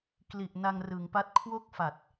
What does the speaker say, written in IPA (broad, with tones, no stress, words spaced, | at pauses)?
kli˨˩ʔ na˧ŋrɯ˩˦ŋpa˦˥t̚ kʰwo˥˩k̚fa˨˩t̚